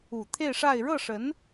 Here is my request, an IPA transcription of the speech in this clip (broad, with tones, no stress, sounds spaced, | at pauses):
u˨˩ t̪ʰ e˥˧ ɪ̯ ʂ a˥˧ ɪ̯ ɻ ɤ˥˩ ʂ ə˧˥ n